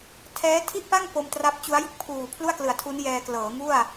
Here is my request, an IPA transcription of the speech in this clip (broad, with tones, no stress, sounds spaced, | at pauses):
tʰ ɛː˦˥ tʰ i˥˩ ʔ p a˥˩ ŋ p o˧ m t r a˦˥ p̚ t͡ɕ u˦˥ a̯ j ɯ˥˩ k̚ pʰ uː˨˩ pʰ l u˥˩ a̯ k l ɯ˩˦ a̯ tʰ u˦˥ n j ɛː˧ k l ɤː˩˦ ŋ u˥˩ a̯